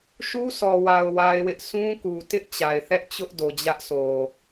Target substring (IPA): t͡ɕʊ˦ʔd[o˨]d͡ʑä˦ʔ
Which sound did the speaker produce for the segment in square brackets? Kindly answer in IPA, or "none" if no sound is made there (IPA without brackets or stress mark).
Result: o˨